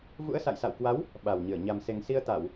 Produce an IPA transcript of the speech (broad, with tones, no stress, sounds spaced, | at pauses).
v ṵ˧˥ ə̯ s a̰˧˨ j s a̰˧˨ w k w a˨˦ w | ɓ a˨˩ w ɲ ɨ˧˩ ə̯ ɲ a˨˩ m s e˨˩ ŋ s i˧ ə̯ t̪ a˧˩˨ w